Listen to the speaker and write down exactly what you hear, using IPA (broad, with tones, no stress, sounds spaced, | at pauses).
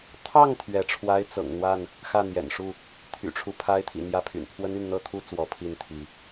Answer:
t̪ʰ ɑ˥˨ ŋ t̪ʰ ɥ ɛ˨˦ ʈ͡ʂʰ w a˦ ɪ̯ t͡s ɤ̰˨˩ ŋ n̪ w a˥˨ n | x ä˥˨ n̪ j ɛ̰˨˩ n ʂ u˥˨ | t̪ʰ y̰˨˩ ʈ͡ʂʰ u˦ pʰ a˦ ɪ̯ t̪ʰ ḭ˨˩ n̪ j ä˥˨ pʰ y̰˨˩ n pʰ w ə˦ n y˥˨ n n̪ ɤ˥˨ t̪ʰ u˥˨ t͡s w ɔ˨˦ pʰ i˥˨ n t̪ʰ i˨˦